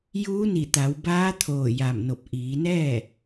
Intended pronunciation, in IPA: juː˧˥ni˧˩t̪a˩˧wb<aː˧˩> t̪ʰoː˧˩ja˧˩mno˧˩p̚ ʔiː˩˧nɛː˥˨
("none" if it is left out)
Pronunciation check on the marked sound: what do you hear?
aː˧˥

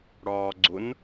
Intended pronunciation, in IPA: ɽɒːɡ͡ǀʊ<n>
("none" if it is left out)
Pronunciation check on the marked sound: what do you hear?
n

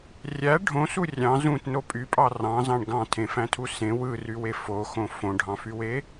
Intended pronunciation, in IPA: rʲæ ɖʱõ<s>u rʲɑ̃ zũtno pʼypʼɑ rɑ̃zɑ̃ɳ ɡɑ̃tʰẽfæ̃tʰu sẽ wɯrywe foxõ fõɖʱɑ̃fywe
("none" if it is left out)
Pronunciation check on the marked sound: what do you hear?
s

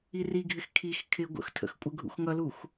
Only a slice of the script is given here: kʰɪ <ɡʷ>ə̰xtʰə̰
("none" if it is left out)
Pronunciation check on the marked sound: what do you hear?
ɡʷ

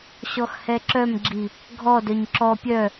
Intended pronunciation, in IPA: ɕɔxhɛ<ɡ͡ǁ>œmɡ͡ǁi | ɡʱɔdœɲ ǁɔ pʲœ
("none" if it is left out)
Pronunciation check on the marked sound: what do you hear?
ǁ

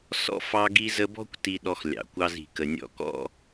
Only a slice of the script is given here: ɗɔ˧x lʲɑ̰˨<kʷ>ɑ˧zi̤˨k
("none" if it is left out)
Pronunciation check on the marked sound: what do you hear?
kʷ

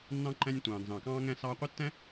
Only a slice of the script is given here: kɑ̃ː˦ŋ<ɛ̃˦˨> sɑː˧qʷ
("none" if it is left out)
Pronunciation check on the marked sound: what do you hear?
ɛ̃˦˨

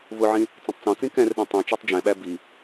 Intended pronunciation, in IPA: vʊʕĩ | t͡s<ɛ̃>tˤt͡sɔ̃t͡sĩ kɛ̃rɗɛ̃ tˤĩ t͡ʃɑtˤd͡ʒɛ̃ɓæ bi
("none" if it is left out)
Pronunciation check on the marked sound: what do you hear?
ɛ̃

